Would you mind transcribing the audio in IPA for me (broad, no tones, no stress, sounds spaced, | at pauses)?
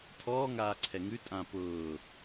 tʰ ɔː ŋ aː ǀʰ ɛ ŋ ʉ tʼ ã p ʊː